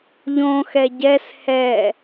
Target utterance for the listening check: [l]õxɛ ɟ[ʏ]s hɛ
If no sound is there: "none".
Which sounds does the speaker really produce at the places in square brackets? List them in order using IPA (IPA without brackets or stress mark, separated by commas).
ʎ, ɛ